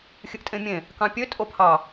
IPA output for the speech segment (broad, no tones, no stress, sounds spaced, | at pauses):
xʲ ɨ ʔ tʼ ẽ mʲ ẽ | k ɑ̃ pʲ ø tʼ o pʰ ɑ